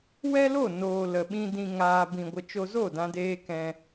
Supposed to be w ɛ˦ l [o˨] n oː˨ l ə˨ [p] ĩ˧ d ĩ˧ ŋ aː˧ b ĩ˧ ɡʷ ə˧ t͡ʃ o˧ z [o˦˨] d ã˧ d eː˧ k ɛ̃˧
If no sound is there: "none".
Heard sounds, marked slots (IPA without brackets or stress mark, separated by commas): o˦˨, ɓ, o˦˨